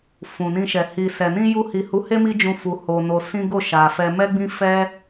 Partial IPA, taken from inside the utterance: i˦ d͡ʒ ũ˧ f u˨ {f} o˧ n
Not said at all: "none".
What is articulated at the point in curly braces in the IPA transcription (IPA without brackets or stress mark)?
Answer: h